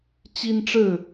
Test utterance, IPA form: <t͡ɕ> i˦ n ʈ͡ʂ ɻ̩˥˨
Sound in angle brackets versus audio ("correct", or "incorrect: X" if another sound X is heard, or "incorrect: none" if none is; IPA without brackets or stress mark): correct